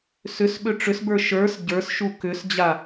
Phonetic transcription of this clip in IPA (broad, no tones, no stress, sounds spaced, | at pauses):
s ʏ s ɓ ʏ ʈ͡ʂ ʏ s b ə˞ ʃ ə˞ s ɟ ə˞ s ʃ u k ʏ s d͡ʑ a